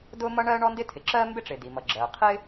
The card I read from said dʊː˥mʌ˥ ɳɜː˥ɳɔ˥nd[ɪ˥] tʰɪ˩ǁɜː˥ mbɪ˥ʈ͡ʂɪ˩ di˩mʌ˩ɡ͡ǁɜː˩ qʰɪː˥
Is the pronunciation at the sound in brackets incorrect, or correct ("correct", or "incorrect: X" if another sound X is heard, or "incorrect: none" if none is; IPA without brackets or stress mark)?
correct